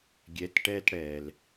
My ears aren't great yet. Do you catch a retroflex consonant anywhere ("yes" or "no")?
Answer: yes